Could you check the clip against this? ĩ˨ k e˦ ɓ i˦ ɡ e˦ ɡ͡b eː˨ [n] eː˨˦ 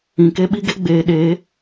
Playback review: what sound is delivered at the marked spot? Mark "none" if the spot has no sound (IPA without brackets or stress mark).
ɗ